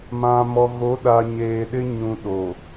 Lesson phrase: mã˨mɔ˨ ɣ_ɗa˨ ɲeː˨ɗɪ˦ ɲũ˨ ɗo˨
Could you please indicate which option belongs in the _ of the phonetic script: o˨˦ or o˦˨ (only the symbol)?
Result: o˨˦